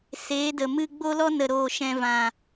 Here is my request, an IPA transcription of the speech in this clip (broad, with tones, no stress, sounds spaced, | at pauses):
s eː˨˦ d ə˨ m ɨ˧ ɡ͡b o˦ l ɔ˦ n ə˨ ɾ oː˨ ʃ ɛ̃˨ v ã˨